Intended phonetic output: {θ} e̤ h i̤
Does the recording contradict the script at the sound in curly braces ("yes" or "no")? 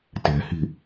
yes